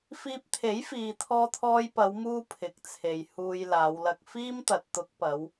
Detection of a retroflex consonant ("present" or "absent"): absent